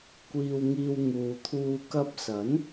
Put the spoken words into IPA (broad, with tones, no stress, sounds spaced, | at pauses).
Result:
kʷ iː˧ w ŋ iː˧ w ŋ uː˨ t̪ʰ uː˧ k ɐ˧ p̚ s ɐ˨˥ n